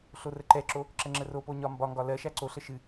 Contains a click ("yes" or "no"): yes